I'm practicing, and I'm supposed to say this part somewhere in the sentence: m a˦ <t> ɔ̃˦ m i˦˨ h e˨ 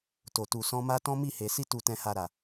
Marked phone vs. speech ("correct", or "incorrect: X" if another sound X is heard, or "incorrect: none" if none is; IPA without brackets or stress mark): correct